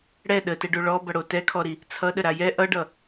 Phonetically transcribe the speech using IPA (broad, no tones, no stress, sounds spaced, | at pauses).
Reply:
ɽ ɛ ɗ ə t ɛ ɖ o ɭ ɔ b ʌ ɽ o t ɛ kʰ ɔ ɾ i | t͡sʰ ʌ ɗ ə ɾ a j ɛ ʔ ʌ ɖ ʌ